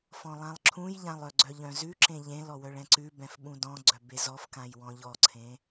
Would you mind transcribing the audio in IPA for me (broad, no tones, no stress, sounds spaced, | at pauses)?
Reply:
f ɔ̃ lˠ ã lˠ ǁʰ ũ j ʎ ã lˠ œ ɡ͡ǀ œ ʎ œ̃ z ʉ ǁ ẽ ʎ ẽ l ɔ w œ ɭ ɛ̃ ǀ ʉ b ɛ̃ f ɓ ũ d ɔ̃ ɡ͡ǀ œ b e z ɔ f k ã j w ɔ̃ ʎ ɔ ǀʰ ẽ